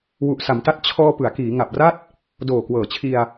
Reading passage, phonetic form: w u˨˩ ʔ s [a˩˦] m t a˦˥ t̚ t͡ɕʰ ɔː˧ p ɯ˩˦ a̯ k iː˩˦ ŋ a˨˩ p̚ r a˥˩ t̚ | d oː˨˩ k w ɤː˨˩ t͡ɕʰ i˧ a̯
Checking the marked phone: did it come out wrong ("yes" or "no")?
no